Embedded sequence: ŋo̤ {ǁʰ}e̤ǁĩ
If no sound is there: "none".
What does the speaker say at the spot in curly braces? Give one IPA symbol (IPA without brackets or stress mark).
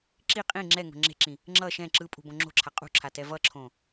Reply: ŋ͡ǁ